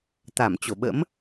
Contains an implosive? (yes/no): yes